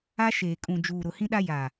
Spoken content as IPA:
a˦ ʃ eː˨ kʼ ũ˨ d͡ʒ uː˨ ɾ ʊ˨ h ĩ˦ ɗ a˦ j a˨

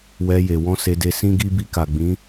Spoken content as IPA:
w ɛ˧ j e˨ w ɔ̃˧ s e˧ d e˧ s ĩ˦ ɡ i˦ b i˧ k a˨ ɡ͡b ĩ˨˦

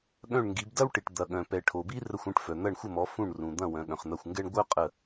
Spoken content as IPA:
ɠ œ̃˧˩ ɳ ŋ ɡ i˩˧ b d ɐ˦ w ʈ i˩ ʈ d̪ ɐ˩ ɠ œ̃˩ p ɛ˩ ʈʰ o˩ b i˦ r ə˧˩ xʷ ũ˧˩ ʈ f œ˩ n̪ ɐ˧˩ ɳ xʷ ə˧˩ m ɔ˩˧ f ũ˧˩ ɳ r ũ˩ d̪ ɐ̃˧˩ w œ̃˩˧ ɠ œ̃˩ χ n̪ ɐ˧˩ xʷ ŋ ɡ ɛ˦ ɳ ɡʷ œ˦ qʼ ə˧˩

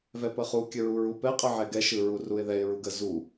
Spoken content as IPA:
v ɛ p ə χ u kʲ ə ɹ u ɹ u p ɛ qʼ ə ʕ ɛ ɡ ɛ ʃ ɯ ɹ u r u ɪ̯ ð ɛ ɪ̯ ɹ u ɡ ə z u

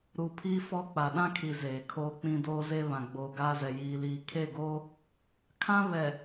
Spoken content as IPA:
ɾ u˨ pʰ iː˦ f ɔ˦˨ k͡p a˨ ɗ ã˦ kʰ i˨ z eː˨ kʰ oː˦ k͡p ĩ˦ d oː˦ z e˦ β ã˨ ɡ͡b oː˨ ɡ aː˦ z ɛ˨ j iː˨ l iː˨ kʰ e˦˨ ɡ oː˦ | kʰ ã˦ β ɛ˨

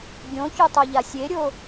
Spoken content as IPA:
ɡʲ õ ç o tˤ ɤ ʎ a sʲ e ɾʲ o

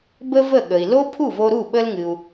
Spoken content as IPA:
b ə˥ v ə˥˩ ɠ ə˩ i̯ l o˥ pʰ u˥˩ v o˧ ɾ u˥˩ ɓ ə˧ l ŋ ɨ˩ u̯

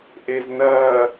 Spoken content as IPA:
ʔ e z n ɐː

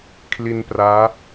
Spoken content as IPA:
kʰ l i˧ n p r aː˦˥

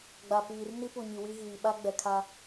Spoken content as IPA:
ɡ͡b a˨ p iː˨ r n i˦ p u˨ ɲ i˨ w i˦ ɣ iː˨ ɓ a˦ ɡ͡b ɛ˨ kʰ a˦

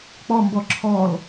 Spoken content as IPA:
k͡p ɔ m b ɔ ǁʰ ɔ l

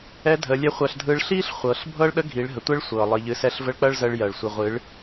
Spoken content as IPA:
ɛ˧˥ dʱ əː˩˧ lʲ ɛ˧˥ χʷ ɜ˧ ɬ dʱ ɯ˧˥ ɭ ɬ iː˥ ɬ χʷ ɤ˩˧ ɬ bʱ ɤ˥ ɭ ɗ ə˧˥ ɡʱ iː˩˧ ɭ ɦ ə˩ tʷ ɛ˧˥ ɭ sʷ ɤː˩ lˠ i˩ ʎ ɨ˩˧ s ɛ˧ ɬ v ə˧˥ ɭ k͡p ɜ˥ ɭ z əː˧ ɭ j ɜ˩ ɭ sʷ ɨ˩ ʁʷ ɨ˩˧ ɭ

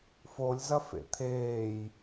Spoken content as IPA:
f o lʲ z ɐ f ḛ t̪ʰ eː j

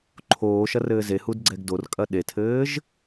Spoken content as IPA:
ǃʰ oː ʃ ɐ r ɘː z e h u d ɡ͡ǀ ɛ ɡ d o r kʼ ɐ ɗ e tʰ ɘː ʒ

